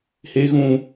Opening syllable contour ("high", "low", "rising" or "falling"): high